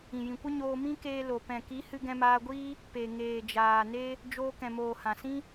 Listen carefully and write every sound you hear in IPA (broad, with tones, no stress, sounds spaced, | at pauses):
ĩ˨ j ĩ˨ kʷ ə˦ ɲ oː˧ m ĩ˦ k eː˧ l o˨ p ɛ̃˨ k i˨˦ h ɨ˧ ɡ ɛ̃˧ m aː˧ ɡʷ iː˦ | p e˨ ŋ eː˨ d͡ʒ aː˨ n e˦ | d͡ʒ oː˧ k ɛ̃˨ m oː˨ h ã˨ s ĩ˦